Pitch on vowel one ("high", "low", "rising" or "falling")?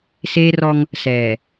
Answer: high